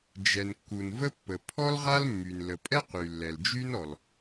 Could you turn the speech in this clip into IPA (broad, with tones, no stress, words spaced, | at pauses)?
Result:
d͡ʒɛ˩nkːu˩nvə˥pːə˩ pʰɔ˥lʁa˥lmːy˩n lə˩pʼɛ˥qy˩ lːɛ˩ld͡ʒy˥nɔ˩l